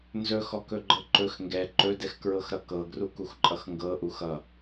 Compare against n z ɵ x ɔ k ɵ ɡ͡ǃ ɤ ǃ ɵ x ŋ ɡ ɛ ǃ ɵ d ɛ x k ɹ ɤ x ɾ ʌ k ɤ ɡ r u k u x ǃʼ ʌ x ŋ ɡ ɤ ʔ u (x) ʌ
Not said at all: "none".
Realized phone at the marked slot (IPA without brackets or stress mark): x